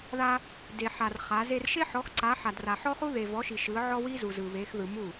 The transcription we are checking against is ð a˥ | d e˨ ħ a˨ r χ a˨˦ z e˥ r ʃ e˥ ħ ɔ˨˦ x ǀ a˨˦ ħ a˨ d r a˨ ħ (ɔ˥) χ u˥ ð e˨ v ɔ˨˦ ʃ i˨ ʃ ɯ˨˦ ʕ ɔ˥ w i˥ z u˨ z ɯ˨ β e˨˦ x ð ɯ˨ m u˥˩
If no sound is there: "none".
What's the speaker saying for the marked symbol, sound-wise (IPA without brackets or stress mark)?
ɔ˥